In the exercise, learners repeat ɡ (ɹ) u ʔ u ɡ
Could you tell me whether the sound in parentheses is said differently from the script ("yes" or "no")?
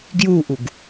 yes